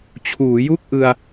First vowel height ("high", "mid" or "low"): high